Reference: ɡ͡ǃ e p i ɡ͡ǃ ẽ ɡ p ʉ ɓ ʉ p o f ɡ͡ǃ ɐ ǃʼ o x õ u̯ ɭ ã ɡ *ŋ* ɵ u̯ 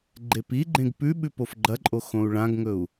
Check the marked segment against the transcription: correct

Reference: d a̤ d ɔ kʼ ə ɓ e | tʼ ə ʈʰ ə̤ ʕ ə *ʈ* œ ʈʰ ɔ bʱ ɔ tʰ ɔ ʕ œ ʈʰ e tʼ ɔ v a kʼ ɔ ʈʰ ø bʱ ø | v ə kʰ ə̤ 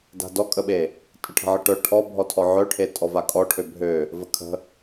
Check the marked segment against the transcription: correct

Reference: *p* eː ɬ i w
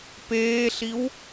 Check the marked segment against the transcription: correct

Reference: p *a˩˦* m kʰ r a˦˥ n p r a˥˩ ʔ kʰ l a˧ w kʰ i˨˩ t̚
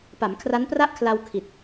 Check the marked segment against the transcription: correct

